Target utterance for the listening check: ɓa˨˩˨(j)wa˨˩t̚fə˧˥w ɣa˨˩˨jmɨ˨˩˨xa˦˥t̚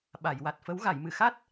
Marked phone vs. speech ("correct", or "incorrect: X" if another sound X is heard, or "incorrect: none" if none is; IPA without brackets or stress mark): correct